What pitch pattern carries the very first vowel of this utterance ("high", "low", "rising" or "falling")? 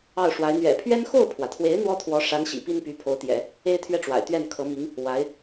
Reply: falling